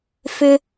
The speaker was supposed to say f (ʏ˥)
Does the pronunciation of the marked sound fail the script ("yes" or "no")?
yes